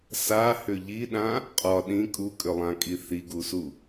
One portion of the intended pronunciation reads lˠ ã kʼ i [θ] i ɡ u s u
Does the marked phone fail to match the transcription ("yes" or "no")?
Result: no